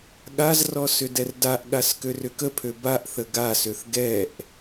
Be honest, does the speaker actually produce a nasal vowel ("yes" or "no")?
no